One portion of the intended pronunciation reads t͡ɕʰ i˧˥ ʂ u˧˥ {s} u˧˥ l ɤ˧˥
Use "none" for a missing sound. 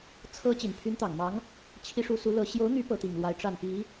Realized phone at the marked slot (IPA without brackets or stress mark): s